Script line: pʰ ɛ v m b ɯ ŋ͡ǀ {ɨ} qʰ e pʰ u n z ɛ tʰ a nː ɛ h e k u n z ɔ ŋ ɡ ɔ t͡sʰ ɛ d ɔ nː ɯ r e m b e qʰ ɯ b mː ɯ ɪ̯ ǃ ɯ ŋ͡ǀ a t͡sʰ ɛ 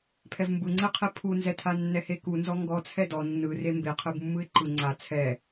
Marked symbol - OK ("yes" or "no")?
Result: no